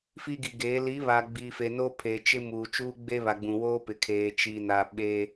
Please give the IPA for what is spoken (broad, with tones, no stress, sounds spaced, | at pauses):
f i˦ ɡ i˨ ɡ eː˨˦ l i˨˦ β aː˨ ɡ͡b i˨ f e˨ n o˦ pʰ e˨ t͡ʃ ɪ˦ m uː˨ t͡ʃ uː˦ ɡ͡b e˦ β a˨ ɡ͡b ũ˨ w oː˦ p ɪ˨ kʰ eː˨ t͡ʃ i˨ n a˨ ɓ e˦